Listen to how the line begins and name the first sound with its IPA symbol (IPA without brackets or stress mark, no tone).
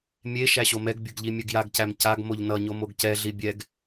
mʲ